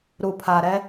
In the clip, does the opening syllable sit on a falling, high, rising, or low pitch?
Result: low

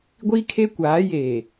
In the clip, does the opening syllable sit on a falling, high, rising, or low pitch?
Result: high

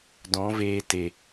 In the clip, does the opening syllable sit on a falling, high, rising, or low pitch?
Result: rising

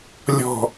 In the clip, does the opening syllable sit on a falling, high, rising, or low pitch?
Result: low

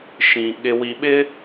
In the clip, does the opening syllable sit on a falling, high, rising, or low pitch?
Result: low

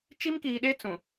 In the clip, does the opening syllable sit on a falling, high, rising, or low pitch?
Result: high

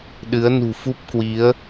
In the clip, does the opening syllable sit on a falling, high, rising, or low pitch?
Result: rising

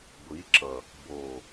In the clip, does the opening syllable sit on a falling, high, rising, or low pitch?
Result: rising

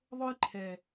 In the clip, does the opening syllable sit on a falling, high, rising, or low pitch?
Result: high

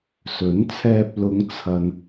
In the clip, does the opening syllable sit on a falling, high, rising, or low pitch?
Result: rising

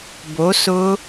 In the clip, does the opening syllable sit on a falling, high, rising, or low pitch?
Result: rising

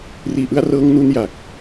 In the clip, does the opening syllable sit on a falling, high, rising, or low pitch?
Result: low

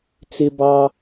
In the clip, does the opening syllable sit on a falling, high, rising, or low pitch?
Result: high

